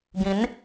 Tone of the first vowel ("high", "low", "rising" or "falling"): rising